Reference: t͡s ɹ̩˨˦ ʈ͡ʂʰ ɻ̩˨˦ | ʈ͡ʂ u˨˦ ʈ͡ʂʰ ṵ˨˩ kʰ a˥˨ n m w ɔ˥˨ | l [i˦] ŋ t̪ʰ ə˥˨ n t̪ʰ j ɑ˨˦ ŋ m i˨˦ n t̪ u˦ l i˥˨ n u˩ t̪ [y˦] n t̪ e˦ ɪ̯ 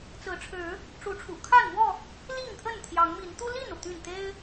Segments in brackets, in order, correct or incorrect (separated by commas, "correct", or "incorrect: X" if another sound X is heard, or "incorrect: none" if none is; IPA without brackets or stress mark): incorrect: i˥˨, incorrect: y˥˨